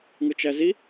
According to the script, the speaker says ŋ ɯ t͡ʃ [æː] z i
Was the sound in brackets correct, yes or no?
no